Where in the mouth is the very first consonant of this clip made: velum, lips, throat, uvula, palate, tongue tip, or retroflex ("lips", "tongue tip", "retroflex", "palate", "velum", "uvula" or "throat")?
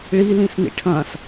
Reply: retroflex